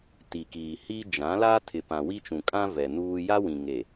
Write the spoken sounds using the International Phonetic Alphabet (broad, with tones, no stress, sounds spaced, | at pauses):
t i˨ k iː˨ h i˦ d͡ʒ ã˨˦ l a˦ tʰ ɪ˨ p ã˨ w i˦ t͡ʃ ũ˨ kʼ ã˦ v ɛ˨ n uː˦ j a˦ w ĩ˨ ŋ e˨